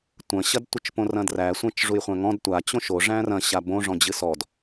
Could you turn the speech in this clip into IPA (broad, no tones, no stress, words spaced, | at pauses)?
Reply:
tʷɐ̃ɕɐdtʷɨt͡ʃ põrɐ̃dræ sʷɛ̃t͡ʃʐujχʷæ̃ŋɔ̃d tʷa t͡ɕõʃo ʐæ̃rɐ̃ɕa bõʐɔ̃ d͡ʑɨsɔd